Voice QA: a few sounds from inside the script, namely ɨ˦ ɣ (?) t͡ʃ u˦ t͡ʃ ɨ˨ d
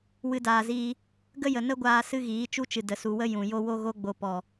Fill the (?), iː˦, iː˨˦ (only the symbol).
iː˨˦